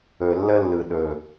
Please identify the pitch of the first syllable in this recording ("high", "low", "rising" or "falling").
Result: low